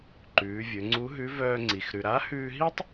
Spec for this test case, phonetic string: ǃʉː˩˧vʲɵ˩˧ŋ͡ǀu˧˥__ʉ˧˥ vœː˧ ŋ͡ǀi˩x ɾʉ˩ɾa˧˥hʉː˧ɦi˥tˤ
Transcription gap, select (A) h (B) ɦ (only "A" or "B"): B